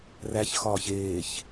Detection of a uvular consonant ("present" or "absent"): absent